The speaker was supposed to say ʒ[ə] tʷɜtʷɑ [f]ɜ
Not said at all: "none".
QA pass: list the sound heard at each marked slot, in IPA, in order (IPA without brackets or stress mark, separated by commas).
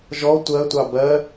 ɔ, b